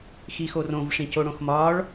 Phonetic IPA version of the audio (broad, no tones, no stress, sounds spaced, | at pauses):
x i x o r õ v ʂ ĩ c o ɽ õ x m ɒ ɭ